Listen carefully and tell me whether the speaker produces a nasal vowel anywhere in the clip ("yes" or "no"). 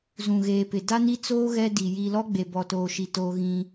yes